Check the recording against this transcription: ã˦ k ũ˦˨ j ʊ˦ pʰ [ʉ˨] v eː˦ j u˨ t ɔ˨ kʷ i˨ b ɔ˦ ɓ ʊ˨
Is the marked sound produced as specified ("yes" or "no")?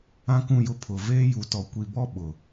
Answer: no